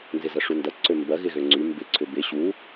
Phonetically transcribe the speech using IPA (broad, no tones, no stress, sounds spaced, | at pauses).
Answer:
n z ɪ z ɐ ʂ u n d ɐ ǀ ø m b ɐ ɣ ɪ ɣ ø ŋ͡ǀ y m b ɪ ǀʰ ʏ b ɪ ɕ u